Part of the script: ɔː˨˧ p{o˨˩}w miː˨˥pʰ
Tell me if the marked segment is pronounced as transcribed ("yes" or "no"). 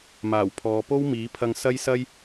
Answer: no